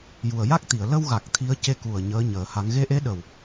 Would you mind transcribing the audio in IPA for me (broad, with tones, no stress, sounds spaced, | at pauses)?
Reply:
j u˨˩ ə̯ j a˦˥ k̚ t̪ i˨˩˨ ə̯ l ə˧ w ɣ a˨˩ k̚ t̪ʰ i˧˥ ə̯ c e˧ k u˨˩ ə̯ ɲ əː˧˥ ɲ əː˨˩˦ h a˧˥ ŋ ɣ e˧˥ ʔ e˧˥ ɗ ə˨˩ w